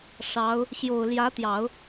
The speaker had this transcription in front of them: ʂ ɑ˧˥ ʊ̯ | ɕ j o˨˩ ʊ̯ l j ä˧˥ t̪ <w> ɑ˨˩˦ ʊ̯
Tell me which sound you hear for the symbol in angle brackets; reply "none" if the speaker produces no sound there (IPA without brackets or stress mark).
j